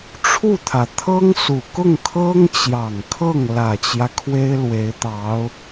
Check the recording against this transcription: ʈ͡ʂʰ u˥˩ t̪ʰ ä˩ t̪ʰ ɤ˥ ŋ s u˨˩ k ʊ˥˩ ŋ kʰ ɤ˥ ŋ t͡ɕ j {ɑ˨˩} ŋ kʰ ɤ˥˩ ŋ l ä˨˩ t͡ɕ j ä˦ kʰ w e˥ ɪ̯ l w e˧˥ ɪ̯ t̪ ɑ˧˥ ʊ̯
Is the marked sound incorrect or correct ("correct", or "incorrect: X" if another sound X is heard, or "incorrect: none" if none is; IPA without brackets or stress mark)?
correct